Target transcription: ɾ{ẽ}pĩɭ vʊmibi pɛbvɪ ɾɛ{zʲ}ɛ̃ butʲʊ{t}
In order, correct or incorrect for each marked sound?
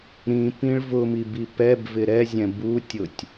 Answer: incorrect, correct, incorrect

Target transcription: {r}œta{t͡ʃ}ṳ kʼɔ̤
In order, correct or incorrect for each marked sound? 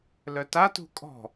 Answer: incorrect, incorrect

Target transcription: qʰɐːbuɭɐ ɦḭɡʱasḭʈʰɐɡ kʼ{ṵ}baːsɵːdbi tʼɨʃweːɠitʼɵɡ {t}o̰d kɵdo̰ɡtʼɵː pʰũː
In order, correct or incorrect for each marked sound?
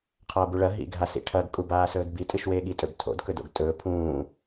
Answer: incorrect, incorrect

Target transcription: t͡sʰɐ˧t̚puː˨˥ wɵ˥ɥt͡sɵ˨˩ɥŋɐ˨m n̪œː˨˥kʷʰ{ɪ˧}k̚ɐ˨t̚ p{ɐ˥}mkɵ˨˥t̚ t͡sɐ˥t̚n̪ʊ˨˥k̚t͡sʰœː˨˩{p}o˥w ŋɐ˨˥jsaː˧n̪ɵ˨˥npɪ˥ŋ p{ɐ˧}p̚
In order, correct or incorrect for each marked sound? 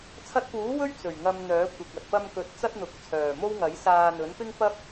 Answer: incorrect, incorrect, incorrect, incorrect

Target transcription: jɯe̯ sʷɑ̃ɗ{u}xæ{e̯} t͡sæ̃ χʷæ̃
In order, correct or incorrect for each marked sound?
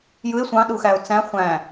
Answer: correct, incorrect

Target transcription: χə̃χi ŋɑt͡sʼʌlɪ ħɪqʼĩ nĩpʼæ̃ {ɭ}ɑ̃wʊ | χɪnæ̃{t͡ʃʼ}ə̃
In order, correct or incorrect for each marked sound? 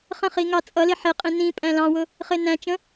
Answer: incorrect, incorrect

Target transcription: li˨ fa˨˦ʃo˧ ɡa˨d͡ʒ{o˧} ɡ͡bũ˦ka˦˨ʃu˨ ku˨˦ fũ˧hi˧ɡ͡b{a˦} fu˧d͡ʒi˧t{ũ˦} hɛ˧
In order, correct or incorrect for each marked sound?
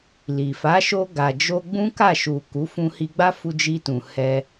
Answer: correct, correct, incorrect

